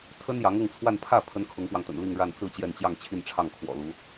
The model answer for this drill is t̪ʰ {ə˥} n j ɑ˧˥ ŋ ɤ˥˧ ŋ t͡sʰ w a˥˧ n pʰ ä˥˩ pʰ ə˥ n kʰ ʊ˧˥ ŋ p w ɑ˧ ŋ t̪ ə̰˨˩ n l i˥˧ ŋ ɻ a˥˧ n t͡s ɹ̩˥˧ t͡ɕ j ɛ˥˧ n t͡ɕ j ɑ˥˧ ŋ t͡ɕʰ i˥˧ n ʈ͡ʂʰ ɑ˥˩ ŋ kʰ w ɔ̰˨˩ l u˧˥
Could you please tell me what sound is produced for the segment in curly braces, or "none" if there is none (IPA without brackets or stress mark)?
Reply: ə˥